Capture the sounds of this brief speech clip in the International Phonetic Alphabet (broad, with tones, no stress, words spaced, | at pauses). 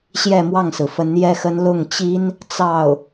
ɕjɛ˥˧ mwɑ˥˩ŋsɹ̩˩fə˧˥n jɛ˥xə˥n lʊ˥˩ŋt͡ɕi˥n | t͡sɑ˥˩ʊ̯